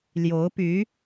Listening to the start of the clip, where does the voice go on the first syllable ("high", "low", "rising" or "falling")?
rising